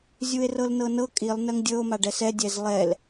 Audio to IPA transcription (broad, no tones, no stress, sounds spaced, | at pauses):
zʲ u e̯ r ɤ l n ɤ n ɤ kʼ i lˠ n ɜ ŋ dʲ ɤ o̯ m a ɖ ɛ s ɛ dʲ ɛ z lˠ ɛ l